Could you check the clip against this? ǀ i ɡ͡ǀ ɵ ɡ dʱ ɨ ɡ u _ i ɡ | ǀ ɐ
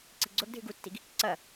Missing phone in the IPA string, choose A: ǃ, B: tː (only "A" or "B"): B